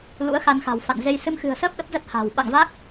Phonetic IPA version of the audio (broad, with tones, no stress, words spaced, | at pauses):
lṵ˧˥ə̯xa˧n xa̤˨˩wfa̰˧˨nze˧j sɨ˧mxɨ̤˨˩ə̯səː˦˥p̚ ɗə˦˥p̚zə˦˥t̚ha̤ː˨˩w ɓa̰˧˨ŋva˦˥k̚